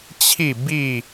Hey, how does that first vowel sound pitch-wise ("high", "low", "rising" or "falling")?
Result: falling